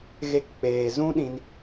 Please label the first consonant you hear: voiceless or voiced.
voiced